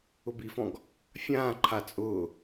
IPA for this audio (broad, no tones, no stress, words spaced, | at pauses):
ʊbifɔ̃ɡ | fʲãːǃʰa t͡sʼʊː